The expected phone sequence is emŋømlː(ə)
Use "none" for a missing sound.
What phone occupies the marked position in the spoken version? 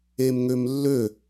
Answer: ø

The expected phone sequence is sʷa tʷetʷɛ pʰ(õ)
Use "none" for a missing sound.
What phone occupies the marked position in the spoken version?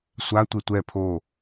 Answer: o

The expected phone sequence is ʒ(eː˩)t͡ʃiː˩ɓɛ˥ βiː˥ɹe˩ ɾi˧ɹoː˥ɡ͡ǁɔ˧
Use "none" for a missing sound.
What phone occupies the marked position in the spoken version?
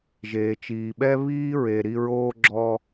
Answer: eː˩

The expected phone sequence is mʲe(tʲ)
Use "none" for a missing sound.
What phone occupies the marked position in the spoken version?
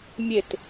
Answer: t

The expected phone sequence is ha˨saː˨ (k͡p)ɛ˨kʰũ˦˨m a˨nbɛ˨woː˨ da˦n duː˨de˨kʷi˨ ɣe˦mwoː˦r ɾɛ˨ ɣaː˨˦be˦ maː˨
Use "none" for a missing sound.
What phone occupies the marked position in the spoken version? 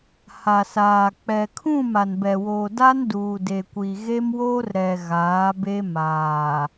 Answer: k͡p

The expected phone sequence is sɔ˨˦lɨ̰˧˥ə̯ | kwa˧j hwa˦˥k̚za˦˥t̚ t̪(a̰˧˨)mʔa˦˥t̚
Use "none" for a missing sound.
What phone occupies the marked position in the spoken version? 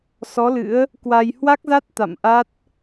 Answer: a̰˧˨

